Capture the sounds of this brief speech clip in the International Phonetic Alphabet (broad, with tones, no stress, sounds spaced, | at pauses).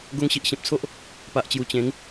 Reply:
ɡ o˧ ŋ ɕ i˨ ʔ ɕ ẽ˨ p̚ t͡sʰ o˦ ʔ | p a˨ ʔ t͡ɕ j u˨˩ t͡ɕ ẽ˨˦ ŋ